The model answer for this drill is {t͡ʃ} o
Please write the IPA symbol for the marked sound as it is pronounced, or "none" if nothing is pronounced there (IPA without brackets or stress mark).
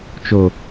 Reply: t͡ʃ